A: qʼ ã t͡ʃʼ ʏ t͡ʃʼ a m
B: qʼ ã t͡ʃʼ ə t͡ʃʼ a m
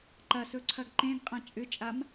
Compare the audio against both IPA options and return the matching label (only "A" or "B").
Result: A